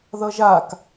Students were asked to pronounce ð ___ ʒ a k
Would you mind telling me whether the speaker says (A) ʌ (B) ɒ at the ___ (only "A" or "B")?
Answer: A